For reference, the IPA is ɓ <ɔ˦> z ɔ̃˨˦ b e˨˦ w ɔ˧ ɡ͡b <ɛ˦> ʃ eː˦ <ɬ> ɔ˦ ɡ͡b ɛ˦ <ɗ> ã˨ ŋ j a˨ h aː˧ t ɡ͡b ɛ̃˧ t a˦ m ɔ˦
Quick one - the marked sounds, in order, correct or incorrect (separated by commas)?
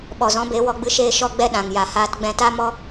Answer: incorrect, incorrect, incorrect, correct